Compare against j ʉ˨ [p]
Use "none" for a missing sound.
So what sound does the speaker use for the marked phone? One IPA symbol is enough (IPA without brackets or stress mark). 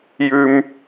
m